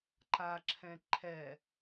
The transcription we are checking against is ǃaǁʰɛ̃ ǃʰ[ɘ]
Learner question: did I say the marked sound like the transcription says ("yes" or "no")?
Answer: no